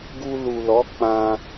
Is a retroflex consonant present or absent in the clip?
absent